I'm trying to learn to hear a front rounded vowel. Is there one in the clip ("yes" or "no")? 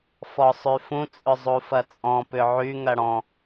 yes